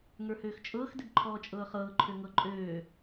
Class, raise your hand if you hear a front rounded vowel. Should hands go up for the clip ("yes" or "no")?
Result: yes